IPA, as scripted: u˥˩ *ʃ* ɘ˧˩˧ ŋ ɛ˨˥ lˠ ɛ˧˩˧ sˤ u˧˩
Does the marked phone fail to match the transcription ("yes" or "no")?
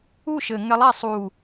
no